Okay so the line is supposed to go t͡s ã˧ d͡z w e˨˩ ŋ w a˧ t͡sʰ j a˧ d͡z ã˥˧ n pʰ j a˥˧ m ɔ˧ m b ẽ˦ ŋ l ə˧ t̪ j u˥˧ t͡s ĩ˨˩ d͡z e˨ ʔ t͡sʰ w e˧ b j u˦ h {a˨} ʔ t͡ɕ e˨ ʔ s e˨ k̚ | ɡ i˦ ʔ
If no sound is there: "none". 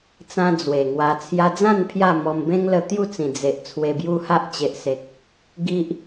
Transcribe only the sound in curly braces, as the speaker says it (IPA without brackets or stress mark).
a˦